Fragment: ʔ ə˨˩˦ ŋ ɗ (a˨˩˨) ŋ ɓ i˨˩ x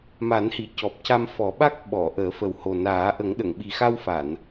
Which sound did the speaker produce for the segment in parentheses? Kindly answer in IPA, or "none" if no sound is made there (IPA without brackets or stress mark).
ə˨˩˨